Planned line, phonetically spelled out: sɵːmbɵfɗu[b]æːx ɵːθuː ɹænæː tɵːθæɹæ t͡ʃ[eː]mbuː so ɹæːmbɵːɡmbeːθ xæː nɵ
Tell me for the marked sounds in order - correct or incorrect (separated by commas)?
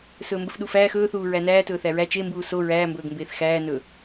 incorrect, incorrect